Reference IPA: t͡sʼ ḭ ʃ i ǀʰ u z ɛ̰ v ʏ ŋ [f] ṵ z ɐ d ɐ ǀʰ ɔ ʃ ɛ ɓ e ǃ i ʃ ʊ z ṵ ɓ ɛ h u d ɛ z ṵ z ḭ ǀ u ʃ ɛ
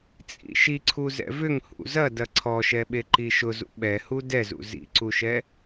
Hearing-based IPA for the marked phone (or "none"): h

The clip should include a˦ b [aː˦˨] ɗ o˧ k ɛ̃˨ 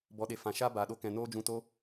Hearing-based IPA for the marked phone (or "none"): aː˨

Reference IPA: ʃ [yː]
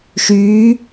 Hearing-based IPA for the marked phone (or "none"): yː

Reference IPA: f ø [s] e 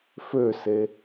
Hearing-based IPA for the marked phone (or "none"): s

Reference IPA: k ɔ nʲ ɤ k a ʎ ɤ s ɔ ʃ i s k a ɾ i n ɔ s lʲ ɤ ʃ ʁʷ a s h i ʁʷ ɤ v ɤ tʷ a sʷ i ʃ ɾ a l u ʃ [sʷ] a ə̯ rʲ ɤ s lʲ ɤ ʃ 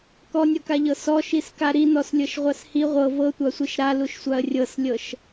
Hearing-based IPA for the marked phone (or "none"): sʷ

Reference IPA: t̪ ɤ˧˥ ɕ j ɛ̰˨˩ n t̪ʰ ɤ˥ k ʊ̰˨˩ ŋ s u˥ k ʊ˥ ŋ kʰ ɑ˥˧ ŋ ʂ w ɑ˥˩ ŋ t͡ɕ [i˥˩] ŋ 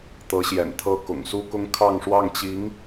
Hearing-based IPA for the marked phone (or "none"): i˧˥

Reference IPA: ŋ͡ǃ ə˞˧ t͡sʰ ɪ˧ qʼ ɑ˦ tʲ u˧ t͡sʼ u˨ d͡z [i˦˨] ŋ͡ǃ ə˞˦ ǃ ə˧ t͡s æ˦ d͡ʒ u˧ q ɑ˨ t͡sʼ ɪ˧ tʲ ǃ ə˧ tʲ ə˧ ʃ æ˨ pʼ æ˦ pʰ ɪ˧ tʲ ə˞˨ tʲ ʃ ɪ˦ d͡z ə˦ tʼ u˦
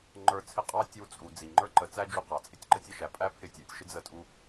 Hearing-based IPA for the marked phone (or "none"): i˨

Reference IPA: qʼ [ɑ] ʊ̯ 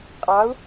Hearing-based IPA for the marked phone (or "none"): ɑ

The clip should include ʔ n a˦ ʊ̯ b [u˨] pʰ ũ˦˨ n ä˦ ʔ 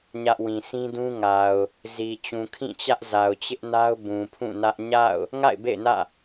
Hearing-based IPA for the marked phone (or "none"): ũ˨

